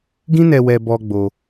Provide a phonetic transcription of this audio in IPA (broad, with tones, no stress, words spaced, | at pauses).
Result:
ɡĩ˦nɛ˧wɛ˧ bɔ˧ ɡ͡bo˧